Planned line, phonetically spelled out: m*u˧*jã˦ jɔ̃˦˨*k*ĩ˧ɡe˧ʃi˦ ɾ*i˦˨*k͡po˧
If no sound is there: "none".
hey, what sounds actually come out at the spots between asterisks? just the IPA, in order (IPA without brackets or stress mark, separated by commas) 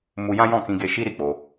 u˧, k, i˦˨